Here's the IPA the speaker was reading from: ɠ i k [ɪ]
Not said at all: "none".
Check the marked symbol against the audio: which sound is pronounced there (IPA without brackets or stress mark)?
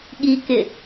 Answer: ɪ